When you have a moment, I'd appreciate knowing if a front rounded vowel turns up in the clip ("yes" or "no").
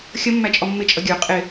no